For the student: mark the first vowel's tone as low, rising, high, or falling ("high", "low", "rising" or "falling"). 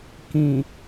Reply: low